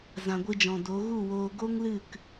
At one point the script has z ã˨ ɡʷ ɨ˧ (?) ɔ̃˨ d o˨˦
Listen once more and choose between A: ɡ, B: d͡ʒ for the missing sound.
B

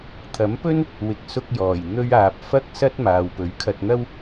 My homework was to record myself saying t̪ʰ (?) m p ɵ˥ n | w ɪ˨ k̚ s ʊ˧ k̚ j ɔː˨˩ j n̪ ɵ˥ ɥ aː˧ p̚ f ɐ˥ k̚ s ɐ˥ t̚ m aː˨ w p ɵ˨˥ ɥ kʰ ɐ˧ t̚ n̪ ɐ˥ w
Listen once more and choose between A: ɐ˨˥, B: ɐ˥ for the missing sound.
A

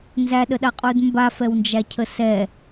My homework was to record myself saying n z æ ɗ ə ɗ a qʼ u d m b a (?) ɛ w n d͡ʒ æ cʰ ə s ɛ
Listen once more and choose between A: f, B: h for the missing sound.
A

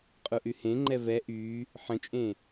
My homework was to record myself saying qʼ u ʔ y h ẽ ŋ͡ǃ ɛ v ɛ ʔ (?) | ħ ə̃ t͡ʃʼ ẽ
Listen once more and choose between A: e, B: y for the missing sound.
B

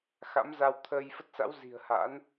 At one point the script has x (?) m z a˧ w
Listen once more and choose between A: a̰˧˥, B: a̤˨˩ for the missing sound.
A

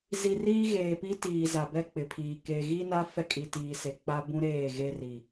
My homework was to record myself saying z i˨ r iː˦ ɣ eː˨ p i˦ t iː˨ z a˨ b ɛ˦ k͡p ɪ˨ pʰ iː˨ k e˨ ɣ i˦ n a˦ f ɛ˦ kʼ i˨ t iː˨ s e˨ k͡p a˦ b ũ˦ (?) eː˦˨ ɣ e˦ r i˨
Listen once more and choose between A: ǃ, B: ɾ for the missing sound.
B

